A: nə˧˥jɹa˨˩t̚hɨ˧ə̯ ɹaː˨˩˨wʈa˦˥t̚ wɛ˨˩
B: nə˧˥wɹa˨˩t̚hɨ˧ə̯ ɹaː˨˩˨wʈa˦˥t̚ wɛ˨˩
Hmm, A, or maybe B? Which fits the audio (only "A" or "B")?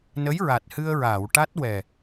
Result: A